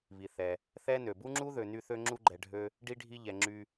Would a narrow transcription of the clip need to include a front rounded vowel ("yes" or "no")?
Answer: yes